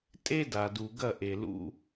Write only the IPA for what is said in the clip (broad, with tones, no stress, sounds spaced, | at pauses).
tʼ e˦ d a˨ d u˨ ɡ ɐ˦˨ ʔ e˨ l ṵ˦